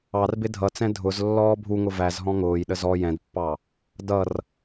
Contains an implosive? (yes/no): yes